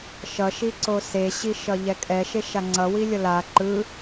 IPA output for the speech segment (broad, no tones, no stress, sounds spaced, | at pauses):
ʃ ʌ ʃ i ǀ o s e ɕ i ʃ ʌ ʎ ɛ kʼ ɛ ʃ e ʃ a ŋ͡ǀ ʌ w i lʲ ʌ l a ǃ ɯ